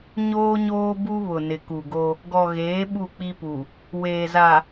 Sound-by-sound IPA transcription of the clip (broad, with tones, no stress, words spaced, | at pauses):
ɲoː˦ɲoː˦bu˦βʊ˨ nɪ˨ku˨ɡo˦ | ɡɔ˨ɣeː˨˦ ɓu˦˨k͡pi˦pu˨ | weː˨za˨